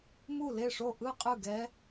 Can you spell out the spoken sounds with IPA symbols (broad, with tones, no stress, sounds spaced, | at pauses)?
m u˥˨ l e˥˨ ʂ o˥˨ ʔ ɯ˥˨ qʼ ɯ˥˨ ɡ ɛ˦˥